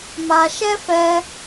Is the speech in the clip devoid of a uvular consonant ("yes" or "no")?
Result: yes